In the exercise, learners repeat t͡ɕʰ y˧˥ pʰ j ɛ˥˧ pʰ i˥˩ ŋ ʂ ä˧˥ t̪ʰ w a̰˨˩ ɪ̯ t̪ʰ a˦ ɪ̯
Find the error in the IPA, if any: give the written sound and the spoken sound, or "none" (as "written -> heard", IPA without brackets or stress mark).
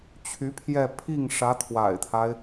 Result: none